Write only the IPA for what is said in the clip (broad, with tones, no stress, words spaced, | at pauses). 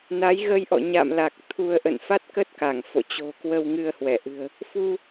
na˨˦jɣə˧jʔɔ̰˧˨ ɲa̰˧˨mla˨˩k̚ t̪ʰu˧ə̯ ʔə̰˧˨nfa˦˥t̚kə˦˥t̚ ka˧˩ŋfo̰˧˨ t͡ɕo̤˨˩kwə˧w ŋɨ˧ə̯hwɛ˧˩ʔɨ̤˨˩ə̯ | fu˧